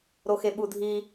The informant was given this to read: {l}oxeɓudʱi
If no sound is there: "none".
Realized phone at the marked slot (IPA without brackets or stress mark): ɾ